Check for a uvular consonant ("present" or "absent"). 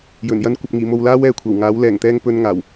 absent